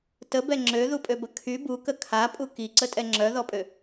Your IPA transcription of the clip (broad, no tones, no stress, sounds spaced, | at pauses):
t ə b ɛ ŋ͡ǁ ø ð u pʼ ø b ə kʰ y b u k ə kʰ a pʼ u k i ǀ ə tʼ ɛ ŋ͡ǁ œ ð ɔ pʼ ø